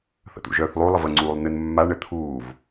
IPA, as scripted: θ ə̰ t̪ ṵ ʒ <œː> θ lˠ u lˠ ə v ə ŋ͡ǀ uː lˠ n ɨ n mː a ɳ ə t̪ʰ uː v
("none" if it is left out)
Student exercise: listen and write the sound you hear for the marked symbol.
œː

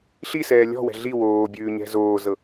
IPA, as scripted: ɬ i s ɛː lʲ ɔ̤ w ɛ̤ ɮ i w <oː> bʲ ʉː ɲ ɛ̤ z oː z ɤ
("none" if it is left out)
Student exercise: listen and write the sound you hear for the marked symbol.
oː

